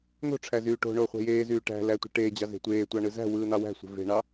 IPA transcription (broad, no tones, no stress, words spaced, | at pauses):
n̪o̤ʈ͡ʂʰæzyː ʈo̤ɳoːχʷe̤ jeːzyː ʈæ̤lætʷe̤ ʈeːd͡ʑɑze̤ tʷeːtʷɑɳɯ zæ̤wɯːn̪ɑ wæ̤sʷe̤ ve̤ɳɑ